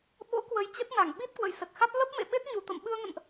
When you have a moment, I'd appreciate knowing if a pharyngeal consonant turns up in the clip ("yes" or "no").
no